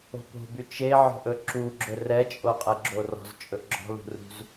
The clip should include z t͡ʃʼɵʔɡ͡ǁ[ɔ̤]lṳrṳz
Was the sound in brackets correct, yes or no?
yes